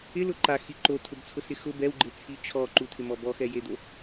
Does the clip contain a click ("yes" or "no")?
yes